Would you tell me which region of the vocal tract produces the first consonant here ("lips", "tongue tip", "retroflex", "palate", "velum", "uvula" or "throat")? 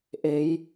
throat